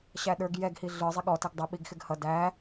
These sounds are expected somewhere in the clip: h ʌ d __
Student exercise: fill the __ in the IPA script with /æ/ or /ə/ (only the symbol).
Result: æ